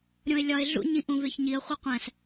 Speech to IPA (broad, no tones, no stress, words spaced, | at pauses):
ɾʲõɪ̯lʲɒɪ̯ɮṵ ɲĩʔũveçɲiə̯ χʷiqʷæ̃s